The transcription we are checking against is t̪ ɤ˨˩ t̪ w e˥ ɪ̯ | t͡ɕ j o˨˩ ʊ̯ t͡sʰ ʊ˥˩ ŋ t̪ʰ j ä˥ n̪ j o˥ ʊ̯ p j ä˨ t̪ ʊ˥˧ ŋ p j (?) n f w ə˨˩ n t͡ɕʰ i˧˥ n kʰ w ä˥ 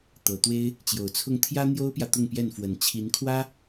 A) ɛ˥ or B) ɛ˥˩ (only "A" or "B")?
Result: B